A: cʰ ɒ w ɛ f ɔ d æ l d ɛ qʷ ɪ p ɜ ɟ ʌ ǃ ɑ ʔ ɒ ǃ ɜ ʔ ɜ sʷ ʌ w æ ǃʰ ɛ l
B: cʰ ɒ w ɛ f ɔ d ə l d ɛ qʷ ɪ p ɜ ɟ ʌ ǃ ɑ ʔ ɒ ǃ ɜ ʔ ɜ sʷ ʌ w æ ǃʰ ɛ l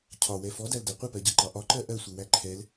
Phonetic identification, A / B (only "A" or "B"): A